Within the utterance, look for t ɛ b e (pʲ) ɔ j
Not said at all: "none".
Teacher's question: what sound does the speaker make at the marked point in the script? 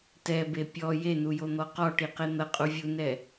pʲ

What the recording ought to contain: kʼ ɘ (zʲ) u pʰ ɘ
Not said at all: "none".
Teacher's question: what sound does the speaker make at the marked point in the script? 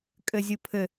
zʲ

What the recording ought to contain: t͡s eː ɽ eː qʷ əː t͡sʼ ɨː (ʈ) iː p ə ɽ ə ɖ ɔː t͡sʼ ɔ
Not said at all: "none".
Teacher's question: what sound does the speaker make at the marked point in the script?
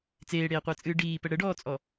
ɖ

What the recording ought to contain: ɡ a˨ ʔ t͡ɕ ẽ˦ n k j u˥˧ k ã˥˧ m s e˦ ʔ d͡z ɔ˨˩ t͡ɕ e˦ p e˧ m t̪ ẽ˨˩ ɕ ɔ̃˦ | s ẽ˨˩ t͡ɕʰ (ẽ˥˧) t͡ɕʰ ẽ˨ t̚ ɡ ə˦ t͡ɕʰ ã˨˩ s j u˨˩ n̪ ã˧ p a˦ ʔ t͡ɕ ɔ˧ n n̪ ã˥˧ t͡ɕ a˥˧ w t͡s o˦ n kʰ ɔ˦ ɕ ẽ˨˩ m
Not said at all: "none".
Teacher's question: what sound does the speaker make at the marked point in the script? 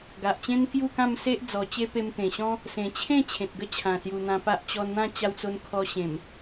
ẽ˥˧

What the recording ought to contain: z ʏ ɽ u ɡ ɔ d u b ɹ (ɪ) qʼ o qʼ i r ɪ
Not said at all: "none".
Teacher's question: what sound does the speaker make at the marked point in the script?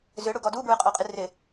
ɪ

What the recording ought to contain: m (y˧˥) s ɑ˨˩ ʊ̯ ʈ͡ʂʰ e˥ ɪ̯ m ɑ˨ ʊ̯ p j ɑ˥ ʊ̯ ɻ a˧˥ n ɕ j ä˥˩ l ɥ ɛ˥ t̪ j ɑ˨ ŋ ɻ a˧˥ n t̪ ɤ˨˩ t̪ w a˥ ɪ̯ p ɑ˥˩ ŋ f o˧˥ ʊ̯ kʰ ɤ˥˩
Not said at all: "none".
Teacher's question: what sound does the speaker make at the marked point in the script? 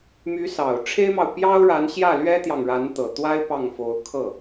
y˧˥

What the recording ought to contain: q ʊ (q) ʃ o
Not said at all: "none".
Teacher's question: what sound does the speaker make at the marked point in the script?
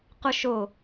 none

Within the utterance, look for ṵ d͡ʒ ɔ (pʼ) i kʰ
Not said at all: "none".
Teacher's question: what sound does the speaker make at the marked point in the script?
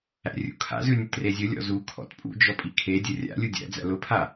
pʼ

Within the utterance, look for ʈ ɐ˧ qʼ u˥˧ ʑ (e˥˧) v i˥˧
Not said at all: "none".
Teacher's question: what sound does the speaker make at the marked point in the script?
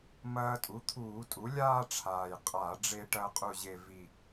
e˥˧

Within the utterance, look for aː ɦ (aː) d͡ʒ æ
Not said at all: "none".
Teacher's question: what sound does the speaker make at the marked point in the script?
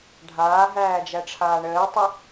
æː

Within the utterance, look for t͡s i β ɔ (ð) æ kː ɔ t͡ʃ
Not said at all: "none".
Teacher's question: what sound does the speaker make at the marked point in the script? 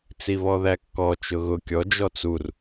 ð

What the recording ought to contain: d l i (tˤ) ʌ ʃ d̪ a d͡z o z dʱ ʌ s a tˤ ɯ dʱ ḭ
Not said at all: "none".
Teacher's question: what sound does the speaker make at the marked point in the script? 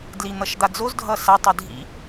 n̪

